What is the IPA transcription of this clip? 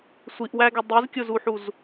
sʷ i ʔ w æ ɡ ɛ dˤ i z kʲ ʊ z u ħ u z

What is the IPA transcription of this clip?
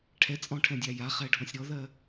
ʈʰ ɛ t͡sʼ ɔ̃ ʈʰ ɛ̃ dʲ a j a χ ɛ ɖʱ ɔ̃ sʲ ɾ ɔ ð ɜ

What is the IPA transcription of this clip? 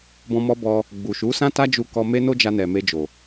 b ɔ̃˧ m ɔ˧ b ɔ˧ | ɡ͡b u˨ ʃ u˨˦ s ã˦ t a˦ d͡ʒ u˧ k ɔ˧ m e˦ n o˦ d͡ʒ a˧ n ɛ˨ m e˧ d͡ʒ o˨

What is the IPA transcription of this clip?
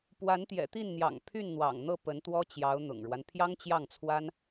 p w a˧˥ n t̪ j ɛ̰˨˩ t̪ i˥˩ n n̪ j ɑ̰˨˩ ŋ pʰ y˥˩ n n̪ w ɑ̰˨˩ ŋ n̪ ɤ˥˩ p ə˧˥ n t̪ w ɔ˥ t͡ɕ j ɑ˧˥ ʊ̯ n̪ ʊ̰˨˩ ŋ ɻ w a˦ n pʰ j ɑ˥ ŋ t͡ɕ j ɑ˥˩ ŋ t͡sʰ w a˥ n

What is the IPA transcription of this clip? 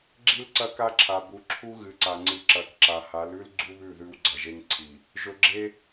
ɡ͡ǁ i˦ l ǀ ɐ˦ k a˦ ǁʰ a˨ b u˨ ǁʰ u˦ ɣ ɨ˨ ǀ a˨ ŋ͡ǀ ɨ˨ ǁ ɐ˨˦ k ǁ a˨ h a˨˦ l ʉ˦ l ɡ͡ǀ u˦ β ʉ˦˨ ð ʉ˦ w ɡ͡ǀ ɐ˨ ʒ e˦ ŋ ǀʰ i˨ | ʒ ɵ˨ ɡ͡ǁ e˦

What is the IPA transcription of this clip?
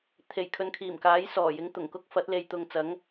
t̪ʰ e˨˩ j kʰ ɵ˨ n kʰ iː˨˩ m k aː˨˥ j s ɔː˨˩ j ɪ˨˥ ŋ t̪ ʊ˨˩ ŋ k ʊ˥ k̚ f ɐ˨˥ t̚ l e˨˧ j t̪ ʊ˨ ŋ t͡s ɐ˨˥ ŋ

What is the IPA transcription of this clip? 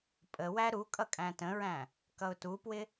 pʼ ə w æ ɾ u kʼ ʌ kʼ æ̃ t ə̃ ɹ æ̃ | k ʌ ʊ̯ t u p w ɪ

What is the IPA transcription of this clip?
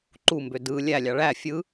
ǃ u m b ø d ɯ lʲ æ lʲ ɑ ɭ æ fʲ ɯ

